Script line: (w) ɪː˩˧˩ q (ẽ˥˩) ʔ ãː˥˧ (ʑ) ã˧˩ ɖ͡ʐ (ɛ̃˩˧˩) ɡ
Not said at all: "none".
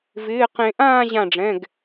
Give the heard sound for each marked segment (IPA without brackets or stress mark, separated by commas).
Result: v, ẽ˨˩˦, ʑ, ɛ̃˩˧˩